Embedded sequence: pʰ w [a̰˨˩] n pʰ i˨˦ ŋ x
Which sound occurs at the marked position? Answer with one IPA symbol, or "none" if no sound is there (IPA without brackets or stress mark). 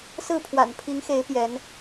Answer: a̰˨˩